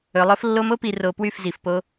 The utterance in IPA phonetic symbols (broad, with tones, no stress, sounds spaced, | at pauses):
ɵ˨ lˠ ɵ˦ f lː o˦ m o˦ p i˨ r o˨ p w y˦˨ f z i˨ f p o˦